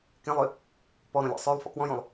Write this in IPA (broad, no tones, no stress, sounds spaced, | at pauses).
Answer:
k ẽ lˠ ø | p ɔ ɾ õ lʲ ɔ̰ sˤ ø lˠ f ɔ̰ k w ɔ̃ j õ lˠ